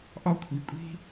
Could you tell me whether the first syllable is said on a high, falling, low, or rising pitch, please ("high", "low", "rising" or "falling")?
high